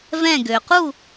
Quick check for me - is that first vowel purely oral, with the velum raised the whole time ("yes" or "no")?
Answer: no